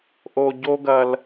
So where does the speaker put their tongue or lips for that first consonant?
throat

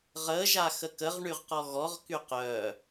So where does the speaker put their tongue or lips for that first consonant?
uvula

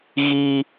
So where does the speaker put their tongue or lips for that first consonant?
velum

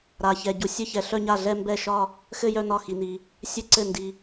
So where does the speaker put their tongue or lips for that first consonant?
tongue tip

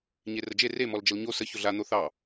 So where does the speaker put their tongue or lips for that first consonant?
palate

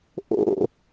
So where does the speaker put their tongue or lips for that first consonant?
throat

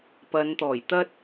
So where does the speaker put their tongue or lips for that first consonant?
lips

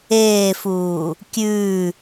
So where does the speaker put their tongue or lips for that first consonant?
lips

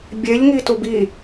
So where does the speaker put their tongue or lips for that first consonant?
lips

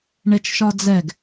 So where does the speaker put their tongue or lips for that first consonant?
retroflex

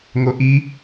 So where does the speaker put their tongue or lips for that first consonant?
velum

